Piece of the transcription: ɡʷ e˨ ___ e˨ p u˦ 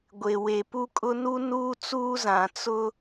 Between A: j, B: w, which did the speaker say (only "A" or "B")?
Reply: B